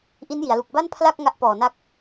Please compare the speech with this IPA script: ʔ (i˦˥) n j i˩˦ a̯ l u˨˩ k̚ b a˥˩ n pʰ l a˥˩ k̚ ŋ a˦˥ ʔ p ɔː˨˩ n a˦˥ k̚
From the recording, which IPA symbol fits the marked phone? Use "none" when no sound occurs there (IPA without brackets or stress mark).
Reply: i˦˥